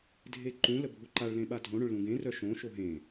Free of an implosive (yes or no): no